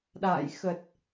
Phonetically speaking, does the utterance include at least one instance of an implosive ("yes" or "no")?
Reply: yes